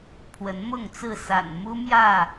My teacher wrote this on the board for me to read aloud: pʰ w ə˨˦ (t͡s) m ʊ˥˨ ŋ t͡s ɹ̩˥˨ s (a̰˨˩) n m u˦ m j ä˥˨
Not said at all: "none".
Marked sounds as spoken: n, a̰˨˩

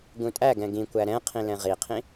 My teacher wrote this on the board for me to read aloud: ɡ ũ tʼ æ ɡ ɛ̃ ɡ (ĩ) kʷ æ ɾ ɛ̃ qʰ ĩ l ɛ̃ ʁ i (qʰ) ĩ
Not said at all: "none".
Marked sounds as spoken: ĩ, qʰ

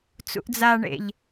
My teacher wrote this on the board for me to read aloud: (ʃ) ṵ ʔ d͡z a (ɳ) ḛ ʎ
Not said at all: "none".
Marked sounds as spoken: t͡s, ɳ

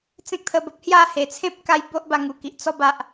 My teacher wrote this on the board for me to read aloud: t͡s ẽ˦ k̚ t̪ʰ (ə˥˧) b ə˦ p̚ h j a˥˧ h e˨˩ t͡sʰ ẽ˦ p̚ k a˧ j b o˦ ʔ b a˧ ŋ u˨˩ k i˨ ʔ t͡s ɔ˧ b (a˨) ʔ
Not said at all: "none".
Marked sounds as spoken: ə˧, a˦

